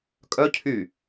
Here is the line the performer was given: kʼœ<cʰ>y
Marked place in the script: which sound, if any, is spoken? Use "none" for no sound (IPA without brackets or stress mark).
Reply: cʰ